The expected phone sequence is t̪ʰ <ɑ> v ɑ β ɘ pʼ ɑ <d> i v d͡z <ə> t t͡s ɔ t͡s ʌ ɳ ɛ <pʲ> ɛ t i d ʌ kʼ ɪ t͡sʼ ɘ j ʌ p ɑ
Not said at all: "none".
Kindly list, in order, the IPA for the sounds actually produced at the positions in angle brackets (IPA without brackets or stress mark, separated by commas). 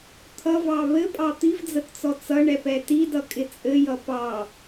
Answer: ʌ, t̪, ə, p